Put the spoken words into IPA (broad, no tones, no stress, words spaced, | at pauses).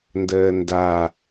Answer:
ndəːnda